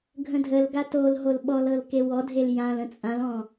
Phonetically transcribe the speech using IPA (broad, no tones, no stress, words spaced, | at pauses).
ɡʱə̃dʱəlɡa tolɦol ɓɔlɤl kewɔdʱel jãlə̃ t͡sʼãlɔ̃